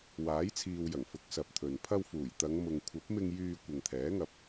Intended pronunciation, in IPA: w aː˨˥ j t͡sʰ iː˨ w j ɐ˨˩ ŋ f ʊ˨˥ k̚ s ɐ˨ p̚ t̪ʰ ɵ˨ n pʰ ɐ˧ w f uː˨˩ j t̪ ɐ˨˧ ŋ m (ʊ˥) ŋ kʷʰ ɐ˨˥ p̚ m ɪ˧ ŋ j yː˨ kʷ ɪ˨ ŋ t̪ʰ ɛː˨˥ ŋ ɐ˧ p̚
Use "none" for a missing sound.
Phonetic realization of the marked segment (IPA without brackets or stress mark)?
ʊ˨